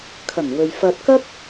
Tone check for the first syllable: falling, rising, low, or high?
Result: low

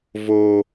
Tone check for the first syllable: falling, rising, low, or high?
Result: high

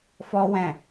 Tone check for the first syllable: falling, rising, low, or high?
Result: high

